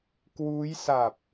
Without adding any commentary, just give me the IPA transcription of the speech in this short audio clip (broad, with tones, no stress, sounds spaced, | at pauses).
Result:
k w uː˦˥ j s a˨˩ p̚